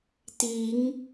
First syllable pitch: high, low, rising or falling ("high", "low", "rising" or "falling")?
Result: rising